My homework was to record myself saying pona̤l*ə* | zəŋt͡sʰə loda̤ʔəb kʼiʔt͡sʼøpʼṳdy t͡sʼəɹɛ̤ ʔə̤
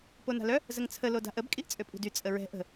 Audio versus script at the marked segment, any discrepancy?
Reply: yes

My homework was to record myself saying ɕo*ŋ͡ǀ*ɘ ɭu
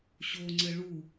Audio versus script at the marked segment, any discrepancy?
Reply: no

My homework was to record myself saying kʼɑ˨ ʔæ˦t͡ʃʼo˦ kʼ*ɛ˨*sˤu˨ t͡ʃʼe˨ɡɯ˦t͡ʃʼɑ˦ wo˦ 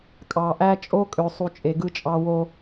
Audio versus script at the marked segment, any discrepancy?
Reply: yes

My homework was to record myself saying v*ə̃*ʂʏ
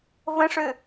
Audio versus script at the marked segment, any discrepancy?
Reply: no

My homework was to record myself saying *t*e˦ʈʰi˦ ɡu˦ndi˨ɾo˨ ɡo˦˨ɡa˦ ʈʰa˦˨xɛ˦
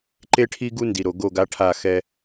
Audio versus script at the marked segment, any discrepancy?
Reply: yes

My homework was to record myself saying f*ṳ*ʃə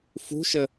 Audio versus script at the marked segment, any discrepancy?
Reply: no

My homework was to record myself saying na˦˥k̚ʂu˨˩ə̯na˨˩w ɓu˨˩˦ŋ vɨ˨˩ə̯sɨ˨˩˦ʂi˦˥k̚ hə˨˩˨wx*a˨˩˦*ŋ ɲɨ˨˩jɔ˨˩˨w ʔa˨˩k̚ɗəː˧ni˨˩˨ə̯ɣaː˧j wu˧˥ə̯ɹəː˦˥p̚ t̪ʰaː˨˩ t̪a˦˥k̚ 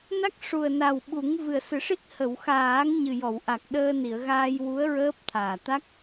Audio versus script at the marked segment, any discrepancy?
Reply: yes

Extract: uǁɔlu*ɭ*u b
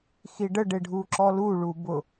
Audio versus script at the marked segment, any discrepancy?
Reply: no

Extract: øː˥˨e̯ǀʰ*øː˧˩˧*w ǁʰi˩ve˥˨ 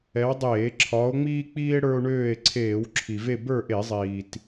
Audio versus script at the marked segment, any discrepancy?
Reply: yes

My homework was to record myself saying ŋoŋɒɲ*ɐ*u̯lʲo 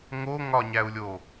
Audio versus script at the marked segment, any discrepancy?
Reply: yes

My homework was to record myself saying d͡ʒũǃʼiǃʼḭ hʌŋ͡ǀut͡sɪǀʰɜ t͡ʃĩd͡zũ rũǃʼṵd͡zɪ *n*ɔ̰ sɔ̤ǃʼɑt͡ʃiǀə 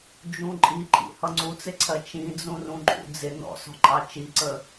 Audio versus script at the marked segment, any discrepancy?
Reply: no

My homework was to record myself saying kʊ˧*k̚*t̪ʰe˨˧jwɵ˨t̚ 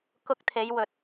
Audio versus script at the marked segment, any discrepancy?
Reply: no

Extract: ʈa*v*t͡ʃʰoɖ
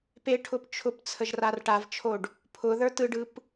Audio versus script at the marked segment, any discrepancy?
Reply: no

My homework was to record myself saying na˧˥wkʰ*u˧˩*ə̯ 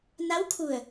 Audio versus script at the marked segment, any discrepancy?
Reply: no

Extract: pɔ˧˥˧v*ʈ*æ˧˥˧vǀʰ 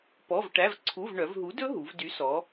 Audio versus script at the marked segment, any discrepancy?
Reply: no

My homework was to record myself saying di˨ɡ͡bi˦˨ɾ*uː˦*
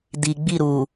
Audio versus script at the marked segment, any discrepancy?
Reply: yes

